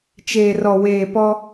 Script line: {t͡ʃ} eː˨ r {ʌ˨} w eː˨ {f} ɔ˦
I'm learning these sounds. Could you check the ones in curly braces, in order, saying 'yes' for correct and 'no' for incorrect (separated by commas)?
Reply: yes, no, no